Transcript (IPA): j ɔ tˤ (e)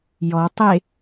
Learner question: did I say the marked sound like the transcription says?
yes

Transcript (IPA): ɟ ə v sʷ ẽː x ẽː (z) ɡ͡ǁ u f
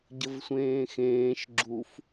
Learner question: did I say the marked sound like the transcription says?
no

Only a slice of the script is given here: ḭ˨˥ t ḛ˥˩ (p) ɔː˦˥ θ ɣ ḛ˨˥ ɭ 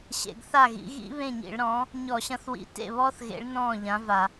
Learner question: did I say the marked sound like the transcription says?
no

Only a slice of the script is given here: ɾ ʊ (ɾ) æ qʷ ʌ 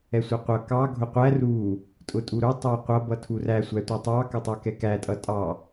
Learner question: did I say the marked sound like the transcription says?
no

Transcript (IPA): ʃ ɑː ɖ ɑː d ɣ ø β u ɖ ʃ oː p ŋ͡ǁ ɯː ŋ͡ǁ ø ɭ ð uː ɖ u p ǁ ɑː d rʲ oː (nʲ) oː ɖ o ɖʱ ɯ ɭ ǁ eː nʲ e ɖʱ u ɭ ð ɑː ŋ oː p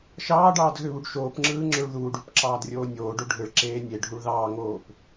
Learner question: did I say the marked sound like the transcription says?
yes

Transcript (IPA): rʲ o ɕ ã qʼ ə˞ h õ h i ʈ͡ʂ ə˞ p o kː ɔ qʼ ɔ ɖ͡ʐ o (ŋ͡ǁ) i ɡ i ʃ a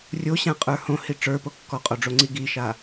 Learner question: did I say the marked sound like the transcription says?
no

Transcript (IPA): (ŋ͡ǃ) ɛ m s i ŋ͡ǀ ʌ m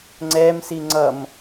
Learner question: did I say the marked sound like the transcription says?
no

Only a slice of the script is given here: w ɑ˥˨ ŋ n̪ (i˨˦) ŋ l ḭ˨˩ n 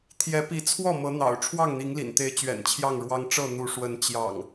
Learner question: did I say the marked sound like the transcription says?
yes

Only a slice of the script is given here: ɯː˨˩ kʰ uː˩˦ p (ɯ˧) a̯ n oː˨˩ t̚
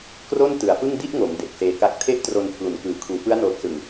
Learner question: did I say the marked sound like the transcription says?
no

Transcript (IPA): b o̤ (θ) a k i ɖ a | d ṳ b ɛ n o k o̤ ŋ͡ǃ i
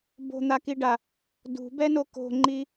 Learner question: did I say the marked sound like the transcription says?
no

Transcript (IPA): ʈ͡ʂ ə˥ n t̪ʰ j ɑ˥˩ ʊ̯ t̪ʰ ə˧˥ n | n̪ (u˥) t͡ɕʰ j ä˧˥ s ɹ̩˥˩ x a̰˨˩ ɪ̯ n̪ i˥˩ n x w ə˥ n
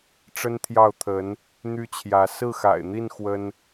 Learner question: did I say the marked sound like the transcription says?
no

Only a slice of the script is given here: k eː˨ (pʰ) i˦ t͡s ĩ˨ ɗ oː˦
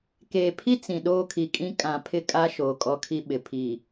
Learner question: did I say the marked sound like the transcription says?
yes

